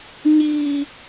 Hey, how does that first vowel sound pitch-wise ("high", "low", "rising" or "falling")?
high